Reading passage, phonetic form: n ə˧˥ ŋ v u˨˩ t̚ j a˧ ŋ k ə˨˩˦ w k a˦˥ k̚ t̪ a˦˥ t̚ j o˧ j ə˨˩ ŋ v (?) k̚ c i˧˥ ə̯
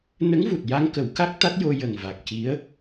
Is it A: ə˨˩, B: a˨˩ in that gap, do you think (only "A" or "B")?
B